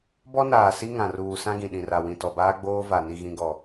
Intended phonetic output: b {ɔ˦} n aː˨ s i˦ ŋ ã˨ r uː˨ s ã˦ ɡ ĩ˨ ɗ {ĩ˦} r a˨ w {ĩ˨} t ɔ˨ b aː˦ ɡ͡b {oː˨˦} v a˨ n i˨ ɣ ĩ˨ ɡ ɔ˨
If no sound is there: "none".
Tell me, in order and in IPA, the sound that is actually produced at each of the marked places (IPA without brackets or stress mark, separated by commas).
ɔ˦, ĩ˨, ĩ˨, oː˦